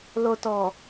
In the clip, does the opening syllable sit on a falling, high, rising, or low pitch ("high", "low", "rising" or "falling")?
low